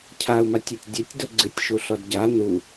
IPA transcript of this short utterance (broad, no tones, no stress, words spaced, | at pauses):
cʰau̯matʲutʲ dʲɘtʲ doɡ͡ǀɨtʲʃu ɬɔdɟa nu